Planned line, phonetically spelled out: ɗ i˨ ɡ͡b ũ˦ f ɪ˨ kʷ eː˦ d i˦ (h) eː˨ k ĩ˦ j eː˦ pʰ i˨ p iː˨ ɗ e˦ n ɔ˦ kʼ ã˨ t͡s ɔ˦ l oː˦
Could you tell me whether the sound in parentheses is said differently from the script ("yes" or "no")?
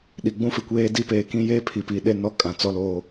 yes